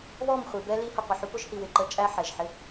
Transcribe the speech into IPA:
βɔ˦˨mχʷi˨ bɛ˦li˦hə˧qʷɪ˨ ħu˧pʊ˦ʒhi˨ wɪ˨ǃə˦˨t͡ʃʼæ˦ ħɛ˨ʒħɪ˦

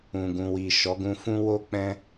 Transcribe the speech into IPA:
ũ˨ɡũ˨wi˨ ʃɔ˨˦ɡũ˧fũ˦ wo˦ k͡pɛ̃˦

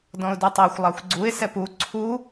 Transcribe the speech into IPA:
dɔ̃ʊ̯dutˤaxʷ lˠaxʷɡ͡ǀuɪ̯ sɛpu ǀʰu

